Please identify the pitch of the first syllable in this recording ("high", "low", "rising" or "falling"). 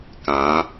rising